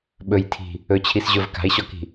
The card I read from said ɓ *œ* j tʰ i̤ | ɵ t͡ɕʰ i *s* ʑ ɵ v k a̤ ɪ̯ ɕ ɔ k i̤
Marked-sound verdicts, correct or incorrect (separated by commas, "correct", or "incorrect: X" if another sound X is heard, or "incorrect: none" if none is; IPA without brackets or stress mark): incorrect: ɵ, correct